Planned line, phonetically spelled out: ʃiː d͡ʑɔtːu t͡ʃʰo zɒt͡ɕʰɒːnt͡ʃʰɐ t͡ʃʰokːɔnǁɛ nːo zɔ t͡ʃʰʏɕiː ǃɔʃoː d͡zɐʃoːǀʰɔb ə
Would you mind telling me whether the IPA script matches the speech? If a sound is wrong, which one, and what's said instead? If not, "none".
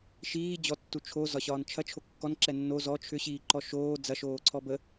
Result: t͡ɕʰ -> ɕ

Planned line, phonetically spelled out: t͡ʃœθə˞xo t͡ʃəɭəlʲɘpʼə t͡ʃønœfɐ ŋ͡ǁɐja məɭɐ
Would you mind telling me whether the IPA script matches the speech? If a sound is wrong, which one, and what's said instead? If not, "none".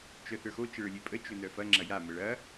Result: ɘ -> ø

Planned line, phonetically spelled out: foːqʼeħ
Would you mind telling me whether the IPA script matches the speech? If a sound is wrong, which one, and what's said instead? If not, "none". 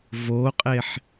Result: f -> v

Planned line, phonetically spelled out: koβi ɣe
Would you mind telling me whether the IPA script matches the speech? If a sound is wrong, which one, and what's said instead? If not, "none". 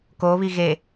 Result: none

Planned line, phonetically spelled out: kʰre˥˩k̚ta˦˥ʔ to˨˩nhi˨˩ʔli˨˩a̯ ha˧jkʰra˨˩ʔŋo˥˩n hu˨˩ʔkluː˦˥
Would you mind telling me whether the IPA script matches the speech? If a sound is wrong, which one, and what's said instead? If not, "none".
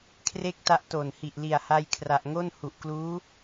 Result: none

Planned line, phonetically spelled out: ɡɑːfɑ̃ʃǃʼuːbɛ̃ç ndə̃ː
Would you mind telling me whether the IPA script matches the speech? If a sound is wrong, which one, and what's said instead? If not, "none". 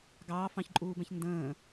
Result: ʃ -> ç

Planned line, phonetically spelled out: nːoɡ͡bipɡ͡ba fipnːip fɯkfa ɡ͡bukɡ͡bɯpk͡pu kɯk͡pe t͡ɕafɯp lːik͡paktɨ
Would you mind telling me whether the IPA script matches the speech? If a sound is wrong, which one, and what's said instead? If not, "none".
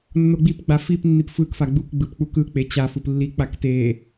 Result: ɨ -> e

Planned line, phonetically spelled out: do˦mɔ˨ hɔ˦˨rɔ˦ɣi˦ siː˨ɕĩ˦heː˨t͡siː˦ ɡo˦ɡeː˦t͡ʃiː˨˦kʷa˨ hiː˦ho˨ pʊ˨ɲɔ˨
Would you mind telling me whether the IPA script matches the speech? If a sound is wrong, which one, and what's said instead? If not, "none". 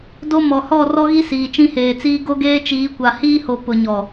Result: ɕ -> t͡ʃ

